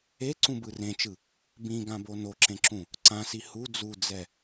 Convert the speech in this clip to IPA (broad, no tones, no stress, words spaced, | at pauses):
eǀũbɯ rẽt͡ʃɯ | bĩɡãbo noǁẽǁũ | ǀãsi hu d͡zud͡zɛ